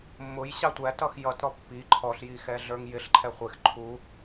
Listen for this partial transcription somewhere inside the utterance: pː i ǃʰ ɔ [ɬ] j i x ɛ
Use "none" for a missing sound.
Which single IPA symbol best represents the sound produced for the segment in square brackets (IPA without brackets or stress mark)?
ɬ